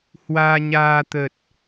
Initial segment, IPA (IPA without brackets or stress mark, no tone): h